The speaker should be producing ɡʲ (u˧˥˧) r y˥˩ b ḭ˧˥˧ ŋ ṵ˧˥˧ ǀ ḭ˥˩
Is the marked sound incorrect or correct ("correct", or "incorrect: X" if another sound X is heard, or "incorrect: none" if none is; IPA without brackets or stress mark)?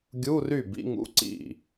correct